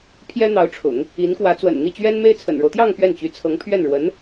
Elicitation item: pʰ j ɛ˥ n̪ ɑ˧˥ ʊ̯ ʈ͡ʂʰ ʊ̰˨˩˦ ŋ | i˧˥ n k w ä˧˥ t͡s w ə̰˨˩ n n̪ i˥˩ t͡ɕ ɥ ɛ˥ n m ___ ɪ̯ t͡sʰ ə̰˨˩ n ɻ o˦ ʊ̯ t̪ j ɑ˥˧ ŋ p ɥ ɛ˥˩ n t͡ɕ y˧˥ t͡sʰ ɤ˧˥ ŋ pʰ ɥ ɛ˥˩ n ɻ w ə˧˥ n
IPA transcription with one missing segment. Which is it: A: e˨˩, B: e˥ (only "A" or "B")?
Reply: B